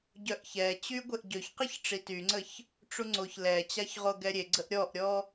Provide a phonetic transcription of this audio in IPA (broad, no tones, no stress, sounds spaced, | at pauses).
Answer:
ɟ œ ʔ ç ɛ t͡ɕ y ɡʷ e ʔ ɟ ø ç q i ç ʈ͡ʂ i t y ŋ͡ǀ ə ç | ʈ͡ʂ u ŋ͡ǀ o ç l ɛ t͡ɕ a ç ʁ o ɡ ɛ ɾʲ e ɡ͡ǀ ə ʔ ɾʲ ɔ ʔ ɾʲ ɔ